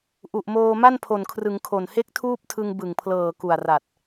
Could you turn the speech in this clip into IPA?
ʔ u˨˩ ʔ m oː˧ m a˥˩ n pʰ o˨˩ n kʰ r ɯ˩˦ ŋ kʰ o˨˩ n h e˥˩ k̚ tʰ uː˥˩ p̚ tʰ ɯ˧ ŋ b ɯ˨˩ ŋ pʰ l ɤː˨˩ k u˨˩ a̯ r a˨˩ t̚

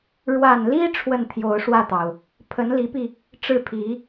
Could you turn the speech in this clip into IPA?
ɻ w a˨˩ n l i˥ ʈ͡ʂʰ w ə˥˩ n t̪ʰ j o˧˥ ʊ̯ ʂ w ä˥˩ t̪ ɑ˩ ʊ̯ | pʰ ə˧˥ n l i˧˥ p i˧ | ʈ͡ʂ ɻ̩˥˩ pʰ i˧˥

